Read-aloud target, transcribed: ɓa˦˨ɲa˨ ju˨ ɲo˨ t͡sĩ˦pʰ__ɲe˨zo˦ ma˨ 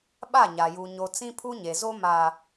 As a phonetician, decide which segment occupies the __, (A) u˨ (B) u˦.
B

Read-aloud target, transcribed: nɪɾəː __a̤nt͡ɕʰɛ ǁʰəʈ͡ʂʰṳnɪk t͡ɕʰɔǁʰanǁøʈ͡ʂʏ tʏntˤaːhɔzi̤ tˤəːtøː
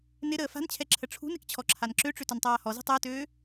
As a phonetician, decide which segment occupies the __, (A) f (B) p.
A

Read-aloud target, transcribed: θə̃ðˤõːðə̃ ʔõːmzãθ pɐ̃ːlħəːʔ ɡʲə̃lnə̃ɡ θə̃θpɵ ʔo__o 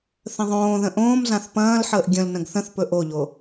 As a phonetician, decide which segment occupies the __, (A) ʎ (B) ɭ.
A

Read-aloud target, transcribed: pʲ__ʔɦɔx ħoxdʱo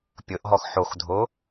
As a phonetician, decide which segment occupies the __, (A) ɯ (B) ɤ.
B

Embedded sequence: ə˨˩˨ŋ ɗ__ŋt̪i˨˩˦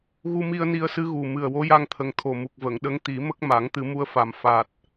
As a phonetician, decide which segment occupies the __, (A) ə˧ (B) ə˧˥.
B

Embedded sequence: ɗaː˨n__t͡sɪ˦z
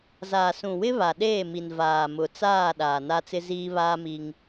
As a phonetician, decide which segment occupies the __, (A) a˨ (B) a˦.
B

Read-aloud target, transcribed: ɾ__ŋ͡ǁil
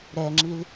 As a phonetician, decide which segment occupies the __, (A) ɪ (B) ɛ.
B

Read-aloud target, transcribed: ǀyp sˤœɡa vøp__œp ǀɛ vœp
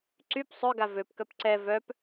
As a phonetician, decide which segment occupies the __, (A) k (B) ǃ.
A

